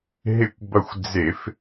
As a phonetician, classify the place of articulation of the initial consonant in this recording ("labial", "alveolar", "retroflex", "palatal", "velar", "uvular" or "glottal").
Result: glottal